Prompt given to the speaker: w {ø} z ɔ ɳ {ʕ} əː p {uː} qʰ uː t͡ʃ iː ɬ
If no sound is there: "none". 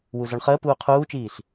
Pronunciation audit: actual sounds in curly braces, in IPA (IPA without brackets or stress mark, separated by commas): u, χ, uː